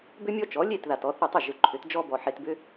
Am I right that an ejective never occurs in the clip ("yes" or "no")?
yes